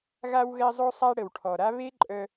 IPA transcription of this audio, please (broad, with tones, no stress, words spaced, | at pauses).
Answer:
ɣa˧wɣɛ˧zˤo˧sˤa˧ ɽə˨wʈʰɔ˨ɾa˦ βe˦ǃʼœ˧